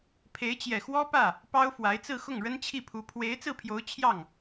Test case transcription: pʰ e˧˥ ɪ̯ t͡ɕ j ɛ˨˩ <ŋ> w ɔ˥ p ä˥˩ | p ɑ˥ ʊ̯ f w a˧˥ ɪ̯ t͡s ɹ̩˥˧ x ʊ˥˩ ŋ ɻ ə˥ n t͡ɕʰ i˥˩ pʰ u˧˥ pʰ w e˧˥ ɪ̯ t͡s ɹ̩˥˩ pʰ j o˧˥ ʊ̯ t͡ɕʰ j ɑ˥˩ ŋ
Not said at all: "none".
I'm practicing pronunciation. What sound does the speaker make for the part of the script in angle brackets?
x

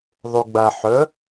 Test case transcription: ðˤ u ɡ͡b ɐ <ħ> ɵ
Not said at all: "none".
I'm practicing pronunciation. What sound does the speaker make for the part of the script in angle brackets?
ħ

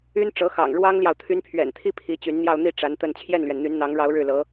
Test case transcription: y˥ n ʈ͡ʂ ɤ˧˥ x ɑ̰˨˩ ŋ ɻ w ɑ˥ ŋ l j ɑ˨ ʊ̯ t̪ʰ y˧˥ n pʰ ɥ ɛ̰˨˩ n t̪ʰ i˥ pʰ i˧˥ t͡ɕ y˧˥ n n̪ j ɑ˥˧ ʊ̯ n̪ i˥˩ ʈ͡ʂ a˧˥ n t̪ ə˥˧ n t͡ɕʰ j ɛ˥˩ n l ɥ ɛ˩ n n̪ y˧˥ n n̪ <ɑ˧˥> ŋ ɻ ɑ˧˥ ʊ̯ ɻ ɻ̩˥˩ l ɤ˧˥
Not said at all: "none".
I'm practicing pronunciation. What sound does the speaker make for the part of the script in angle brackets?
ɑ˧˥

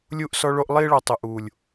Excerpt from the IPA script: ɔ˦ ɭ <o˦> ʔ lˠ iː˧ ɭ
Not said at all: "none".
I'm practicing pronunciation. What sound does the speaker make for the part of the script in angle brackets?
o˦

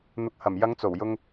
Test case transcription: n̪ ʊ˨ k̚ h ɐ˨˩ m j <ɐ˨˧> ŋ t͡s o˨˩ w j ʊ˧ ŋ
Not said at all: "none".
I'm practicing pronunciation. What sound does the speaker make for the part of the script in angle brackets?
ɐ˨˧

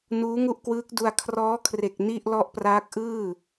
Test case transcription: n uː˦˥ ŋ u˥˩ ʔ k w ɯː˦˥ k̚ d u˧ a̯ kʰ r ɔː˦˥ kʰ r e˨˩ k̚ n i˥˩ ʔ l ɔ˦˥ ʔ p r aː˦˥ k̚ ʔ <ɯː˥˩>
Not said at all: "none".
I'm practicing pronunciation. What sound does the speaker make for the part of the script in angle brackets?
ɯː˥˩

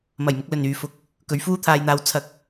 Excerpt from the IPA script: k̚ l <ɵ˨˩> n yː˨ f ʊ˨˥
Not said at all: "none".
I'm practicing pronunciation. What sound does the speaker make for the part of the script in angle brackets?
ɵ˨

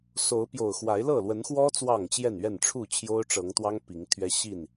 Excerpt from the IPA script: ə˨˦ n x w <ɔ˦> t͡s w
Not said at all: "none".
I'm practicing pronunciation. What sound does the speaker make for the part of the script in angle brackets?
ɔ˦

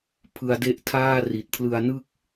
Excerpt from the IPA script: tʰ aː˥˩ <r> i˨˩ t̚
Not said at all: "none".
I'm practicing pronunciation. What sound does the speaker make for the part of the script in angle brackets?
r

